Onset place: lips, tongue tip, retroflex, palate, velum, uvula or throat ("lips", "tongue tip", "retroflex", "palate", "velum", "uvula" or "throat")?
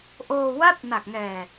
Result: throat